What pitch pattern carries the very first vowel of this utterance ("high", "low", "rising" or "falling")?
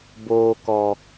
low